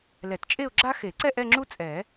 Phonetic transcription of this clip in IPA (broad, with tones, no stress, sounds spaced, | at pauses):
l ɛ˨˩˦ t t͡ʃʼ e˥˧ ʊ̯ ɡ͡ǁ a˥ x e˨˩˦ ǀ ɛ˥˧ ʔ ɛ˥˧ ŋ͡ǁ u˥ t͡sʼ ɛ˨˩˦